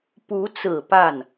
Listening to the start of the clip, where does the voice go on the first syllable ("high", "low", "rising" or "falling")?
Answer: rising